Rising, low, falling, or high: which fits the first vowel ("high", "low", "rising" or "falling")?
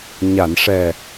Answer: low